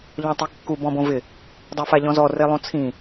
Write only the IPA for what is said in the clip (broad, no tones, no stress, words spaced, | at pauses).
ʎɔ̃tˤikːu bɔ̃bõvɪ | dˤɛfaʎɔ̃zɔ relˠõt͡sʰĩ